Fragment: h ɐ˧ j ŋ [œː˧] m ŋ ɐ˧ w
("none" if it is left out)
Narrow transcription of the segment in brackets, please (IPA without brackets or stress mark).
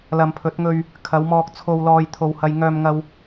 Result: œː˧